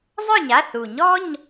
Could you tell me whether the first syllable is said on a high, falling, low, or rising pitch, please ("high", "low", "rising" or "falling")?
falling